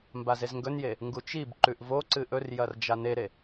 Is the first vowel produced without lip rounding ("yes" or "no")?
yes